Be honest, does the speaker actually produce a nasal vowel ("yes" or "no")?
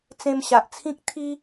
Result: yes